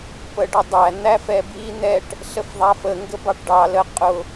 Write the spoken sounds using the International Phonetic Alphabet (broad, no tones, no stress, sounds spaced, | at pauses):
p ə ɖ ə dˤ æ n̪ æ f ɛ b i n̪ ɛ ʈ | ɬ ə f ðˤ æ f ə ŋ ɡ ə b ɑ ʈ ɖ ɑ l ə qʼ ʊ